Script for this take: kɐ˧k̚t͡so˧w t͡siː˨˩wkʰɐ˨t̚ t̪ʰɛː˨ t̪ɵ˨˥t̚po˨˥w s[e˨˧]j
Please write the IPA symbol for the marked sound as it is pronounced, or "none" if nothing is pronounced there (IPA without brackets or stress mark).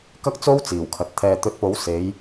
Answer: e˨˧